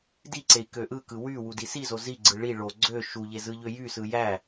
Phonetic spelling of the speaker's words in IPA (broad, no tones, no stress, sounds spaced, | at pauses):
d i ǀ e i̯ k ø ʔ ɯ k ɯ w y w u d i s i z o z i ɡ͡ǀ ɯ ɭ i ɭ o ɡ͡ǀ ø ʃ u ʎ e z ɯ ʎ ø j y s ɯ j æ